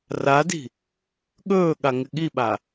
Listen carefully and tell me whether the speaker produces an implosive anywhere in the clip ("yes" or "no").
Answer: yes